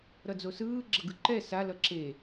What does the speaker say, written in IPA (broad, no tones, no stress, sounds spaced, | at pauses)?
ɾ ʌ d͡z o s ɯː ɡ͡ǁ ʌ ɡ ɯ ǃ ɛ s a l ʌ ǁ e